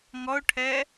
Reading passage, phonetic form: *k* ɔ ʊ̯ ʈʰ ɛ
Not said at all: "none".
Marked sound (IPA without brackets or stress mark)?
ŋ